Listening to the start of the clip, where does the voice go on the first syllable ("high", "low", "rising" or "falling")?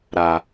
low